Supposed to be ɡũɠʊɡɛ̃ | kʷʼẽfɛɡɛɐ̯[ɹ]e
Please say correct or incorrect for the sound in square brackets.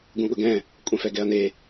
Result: incorrect